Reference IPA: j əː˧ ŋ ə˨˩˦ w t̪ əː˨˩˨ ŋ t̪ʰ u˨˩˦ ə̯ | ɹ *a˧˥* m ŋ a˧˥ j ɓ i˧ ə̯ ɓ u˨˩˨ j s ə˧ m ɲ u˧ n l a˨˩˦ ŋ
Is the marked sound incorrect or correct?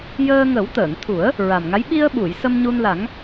incorrect